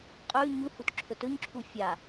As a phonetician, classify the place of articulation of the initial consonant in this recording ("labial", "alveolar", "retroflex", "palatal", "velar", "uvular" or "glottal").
uvular